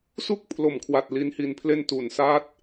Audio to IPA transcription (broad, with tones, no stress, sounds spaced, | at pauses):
s u˥˩ k̚ pʰ l o˨˩ m kʰ w a˨˩ t̚ l i˦˥ n h i˧ n pʰ l e˥˩ n t u˨˩ n s aː˦˥ t̚